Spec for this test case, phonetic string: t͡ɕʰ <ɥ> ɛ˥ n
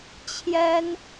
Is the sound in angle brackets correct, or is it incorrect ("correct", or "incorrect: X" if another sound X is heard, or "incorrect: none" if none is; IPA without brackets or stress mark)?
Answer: incorrect: j